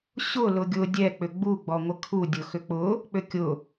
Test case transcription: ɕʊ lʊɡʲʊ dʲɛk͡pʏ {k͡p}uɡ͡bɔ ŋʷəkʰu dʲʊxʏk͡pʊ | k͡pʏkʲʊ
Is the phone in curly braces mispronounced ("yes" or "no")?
yes